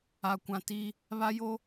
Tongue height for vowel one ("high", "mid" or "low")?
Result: low